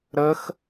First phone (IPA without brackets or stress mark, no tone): ɾ